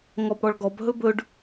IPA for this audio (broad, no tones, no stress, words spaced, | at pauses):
ŋɔbɽɔɭɡɔbɦɵ bɵɖ